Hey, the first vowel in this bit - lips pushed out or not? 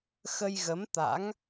no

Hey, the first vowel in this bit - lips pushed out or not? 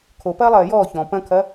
yes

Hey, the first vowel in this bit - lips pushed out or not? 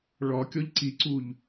yes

